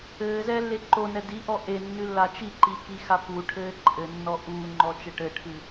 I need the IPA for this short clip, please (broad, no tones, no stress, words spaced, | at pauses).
ɘːzɛːlːe ǃonɛ diʔɔ ʔenːɨlːa t͡ʃiǃikixa puʈʰɘː ǃʼɘnːɔ ʔuːŋ͡ǃɔt͡ʃɘ ʈɘʈʰɨ